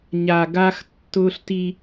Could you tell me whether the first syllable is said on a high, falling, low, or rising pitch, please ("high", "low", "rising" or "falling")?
low